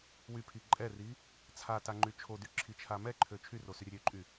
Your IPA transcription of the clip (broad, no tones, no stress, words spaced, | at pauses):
wypʰi ǃʼɛri | t͡sʰataŋ͡ǃy t͡ʃʰodyǁʰit͡ʃʰa mɛǃʰø t͡ʃʰyrosyɾʲə ɾʲøǃʼy